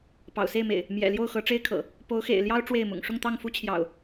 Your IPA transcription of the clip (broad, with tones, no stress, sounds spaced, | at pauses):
p ɑ̰˨˩ ʊ̯ s e˥˨ ɪ̯ m ḛ˨˩ ɪ̯ | m j ɛ̰˨˩ l j o˥˨ ʊ̯ x ɤ˨˦ ʈ͡ʂ e˦ ɪ̯ kʰ ɤ̰˨˩ | p o˨˦ ʊ̯ x ḛ˨˩ ɪ̯ l j ɑ˦ ʊ̯ ʈ͡ʂ w e˥˨ ɪ̯ m ʊ̰˨˩ ŋ ʂ ʊ˥˨ ŋ t̪ ɑ˥˨ ŋ f u˦ t͡ɕʰ j ɑ̰˨˩ ʊ̯